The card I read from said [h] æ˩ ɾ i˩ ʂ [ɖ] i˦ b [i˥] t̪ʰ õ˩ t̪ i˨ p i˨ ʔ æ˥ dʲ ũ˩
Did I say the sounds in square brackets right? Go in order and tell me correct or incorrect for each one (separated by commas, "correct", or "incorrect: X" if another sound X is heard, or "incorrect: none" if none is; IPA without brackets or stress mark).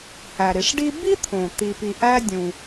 correct, correct, correct